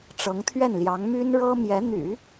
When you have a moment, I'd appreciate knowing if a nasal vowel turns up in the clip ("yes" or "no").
no